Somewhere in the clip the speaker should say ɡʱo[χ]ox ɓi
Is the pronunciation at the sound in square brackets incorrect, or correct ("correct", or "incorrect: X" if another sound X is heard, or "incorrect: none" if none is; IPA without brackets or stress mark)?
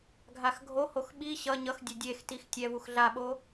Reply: incorrect: h